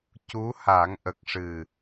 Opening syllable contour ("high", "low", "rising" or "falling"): rising